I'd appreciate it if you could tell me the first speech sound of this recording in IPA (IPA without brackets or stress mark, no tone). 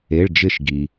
e